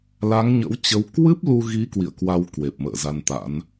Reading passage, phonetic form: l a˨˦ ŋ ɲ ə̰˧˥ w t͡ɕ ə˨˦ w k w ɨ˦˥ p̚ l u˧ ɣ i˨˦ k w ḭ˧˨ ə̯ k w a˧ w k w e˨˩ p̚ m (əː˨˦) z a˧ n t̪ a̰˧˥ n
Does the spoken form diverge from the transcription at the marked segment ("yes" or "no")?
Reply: yes